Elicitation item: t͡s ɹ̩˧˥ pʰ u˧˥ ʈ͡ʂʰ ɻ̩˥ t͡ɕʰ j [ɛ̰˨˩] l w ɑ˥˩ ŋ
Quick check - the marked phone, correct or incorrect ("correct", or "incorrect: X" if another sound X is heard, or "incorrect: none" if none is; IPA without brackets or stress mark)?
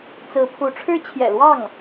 correct